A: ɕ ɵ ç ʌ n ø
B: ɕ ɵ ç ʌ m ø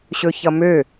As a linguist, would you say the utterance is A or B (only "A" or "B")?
B